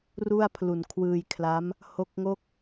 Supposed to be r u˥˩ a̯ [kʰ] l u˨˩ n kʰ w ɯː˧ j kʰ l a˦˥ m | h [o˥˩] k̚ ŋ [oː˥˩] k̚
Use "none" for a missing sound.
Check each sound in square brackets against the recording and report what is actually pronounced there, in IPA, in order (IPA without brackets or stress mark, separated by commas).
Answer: pʰ, o˦˥, o˥˩